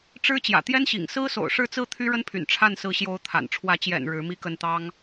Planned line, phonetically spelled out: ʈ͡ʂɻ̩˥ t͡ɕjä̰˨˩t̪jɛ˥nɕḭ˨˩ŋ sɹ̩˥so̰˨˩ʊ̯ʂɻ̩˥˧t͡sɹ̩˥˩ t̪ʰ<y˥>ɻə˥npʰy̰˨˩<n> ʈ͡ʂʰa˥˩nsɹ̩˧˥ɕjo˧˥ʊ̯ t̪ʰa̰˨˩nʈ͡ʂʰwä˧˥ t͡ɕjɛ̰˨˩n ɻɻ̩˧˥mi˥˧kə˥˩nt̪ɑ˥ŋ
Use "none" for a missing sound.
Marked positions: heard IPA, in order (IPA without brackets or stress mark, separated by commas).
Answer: y˥, n